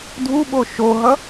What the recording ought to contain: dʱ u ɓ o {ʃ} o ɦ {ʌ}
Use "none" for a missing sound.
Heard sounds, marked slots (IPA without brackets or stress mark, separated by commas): ʃ, ʌ